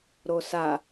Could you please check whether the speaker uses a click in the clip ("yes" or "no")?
no